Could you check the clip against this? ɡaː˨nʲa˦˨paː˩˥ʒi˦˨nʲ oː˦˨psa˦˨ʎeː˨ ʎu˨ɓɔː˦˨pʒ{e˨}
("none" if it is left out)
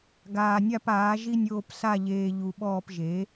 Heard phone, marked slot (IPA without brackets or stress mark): e˩˥